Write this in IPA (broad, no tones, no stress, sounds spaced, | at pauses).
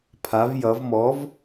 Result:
pʰ a v j ʌ v m ɔ v